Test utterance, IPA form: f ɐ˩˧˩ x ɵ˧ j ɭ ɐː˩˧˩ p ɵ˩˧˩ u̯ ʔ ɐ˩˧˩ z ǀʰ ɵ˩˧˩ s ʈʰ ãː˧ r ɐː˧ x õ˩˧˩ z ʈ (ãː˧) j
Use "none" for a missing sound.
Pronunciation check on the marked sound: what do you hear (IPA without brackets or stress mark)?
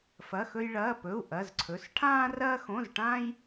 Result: ãː˧